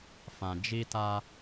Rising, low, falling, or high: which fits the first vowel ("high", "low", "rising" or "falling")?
low